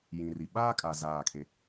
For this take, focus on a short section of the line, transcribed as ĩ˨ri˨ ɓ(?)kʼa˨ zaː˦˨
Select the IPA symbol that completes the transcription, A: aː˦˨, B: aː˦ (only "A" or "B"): B